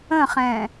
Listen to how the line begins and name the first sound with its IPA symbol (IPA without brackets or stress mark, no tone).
ə̃